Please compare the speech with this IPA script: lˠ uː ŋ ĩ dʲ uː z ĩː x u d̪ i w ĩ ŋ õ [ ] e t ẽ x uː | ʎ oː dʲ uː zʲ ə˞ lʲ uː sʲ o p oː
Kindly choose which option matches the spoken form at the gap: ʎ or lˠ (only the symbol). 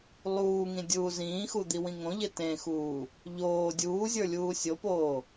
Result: ʎ